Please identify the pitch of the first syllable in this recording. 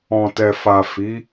low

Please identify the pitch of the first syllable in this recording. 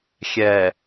low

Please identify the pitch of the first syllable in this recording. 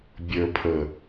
low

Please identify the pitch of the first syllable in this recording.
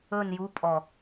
falling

